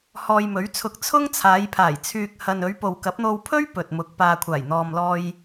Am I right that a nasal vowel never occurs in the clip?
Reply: yes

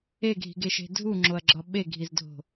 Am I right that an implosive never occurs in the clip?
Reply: no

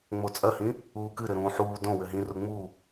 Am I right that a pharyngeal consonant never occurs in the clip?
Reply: no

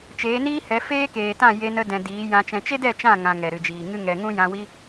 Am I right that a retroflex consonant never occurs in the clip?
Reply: yes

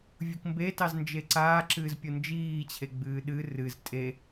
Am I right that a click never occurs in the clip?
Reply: no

